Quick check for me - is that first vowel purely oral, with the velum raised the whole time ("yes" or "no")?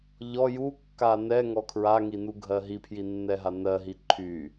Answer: yes